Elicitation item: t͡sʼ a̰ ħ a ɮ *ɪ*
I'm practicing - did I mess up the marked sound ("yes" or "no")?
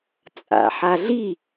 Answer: yes